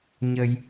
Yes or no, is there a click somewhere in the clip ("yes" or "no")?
no